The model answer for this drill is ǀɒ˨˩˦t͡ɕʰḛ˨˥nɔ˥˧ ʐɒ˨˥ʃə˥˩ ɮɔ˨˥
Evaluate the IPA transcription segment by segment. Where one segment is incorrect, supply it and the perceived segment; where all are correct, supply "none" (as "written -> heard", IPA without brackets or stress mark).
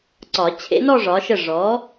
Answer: ɮ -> ʐ